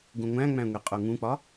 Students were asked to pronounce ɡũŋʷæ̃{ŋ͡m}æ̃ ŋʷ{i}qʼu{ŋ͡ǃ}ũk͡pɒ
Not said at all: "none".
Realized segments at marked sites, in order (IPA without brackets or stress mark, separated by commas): ŋ͡m, i, ŋ